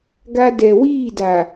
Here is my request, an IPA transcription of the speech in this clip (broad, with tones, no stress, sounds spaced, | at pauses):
ɡ a˦ d ɛ˨ w iː˦˨ d a˨